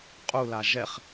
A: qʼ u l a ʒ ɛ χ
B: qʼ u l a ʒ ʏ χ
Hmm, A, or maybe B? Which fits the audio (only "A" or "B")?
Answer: A